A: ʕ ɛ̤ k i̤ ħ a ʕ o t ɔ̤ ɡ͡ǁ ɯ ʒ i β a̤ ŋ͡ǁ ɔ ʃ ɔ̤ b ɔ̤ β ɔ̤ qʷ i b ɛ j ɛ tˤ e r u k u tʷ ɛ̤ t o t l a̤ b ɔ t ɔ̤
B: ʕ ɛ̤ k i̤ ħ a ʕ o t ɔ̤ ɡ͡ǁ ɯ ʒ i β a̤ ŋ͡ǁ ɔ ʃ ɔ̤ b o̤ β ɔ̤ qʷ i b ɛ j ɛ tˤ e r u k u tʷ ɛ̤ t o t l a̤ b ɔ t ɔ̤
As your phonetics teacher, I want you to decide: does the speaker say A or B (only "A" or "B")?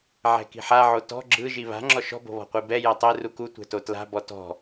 B